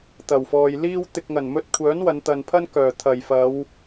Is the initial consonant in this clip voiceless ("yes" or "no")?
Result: yes